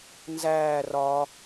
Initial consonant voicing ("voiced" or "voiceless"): voiced